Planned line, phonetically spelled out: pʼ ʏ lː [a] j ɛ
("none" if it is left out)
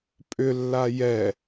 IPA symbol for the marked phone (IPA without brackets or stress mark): a